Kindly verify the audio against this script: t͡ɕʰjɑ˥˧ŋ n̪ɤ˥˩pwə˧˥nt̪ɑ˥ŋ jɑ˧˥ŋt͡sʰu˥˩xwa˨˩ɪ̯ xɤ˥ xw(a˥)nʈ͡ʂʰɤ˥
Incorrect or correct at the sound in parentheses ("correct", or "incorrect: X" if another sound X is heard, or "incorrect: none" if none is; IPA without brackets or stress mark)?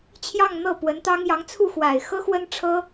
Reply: incorrect: ə˥